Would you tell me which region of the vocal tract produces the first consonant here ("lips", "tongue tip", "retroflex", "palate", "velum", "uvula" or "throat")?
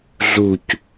tongue tip